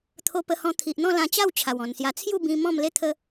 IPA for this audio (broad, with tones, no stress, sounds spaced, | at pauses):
t̪ʰ o˧ p ə˧ h ɔ̃˧ t̪ʰ i˨ ʔ n̪ ɔ̃˥˧ l ã˧ t͡ɕ a˥˧ w t͡ɕʰ a˨˩ w ɔ̃˨˩ n s j a˧ t͡sʰ j u˥˧ b ĩ˧ m ɔ̃˥˧ m l e˥˧ t̪ʰ ə˦